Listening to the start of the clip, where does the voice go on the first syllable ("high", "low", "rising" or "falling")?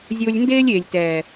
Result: high